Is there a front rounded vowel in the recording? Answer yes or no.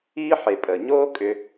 yes